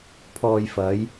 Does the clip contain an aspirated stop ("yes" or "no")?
yes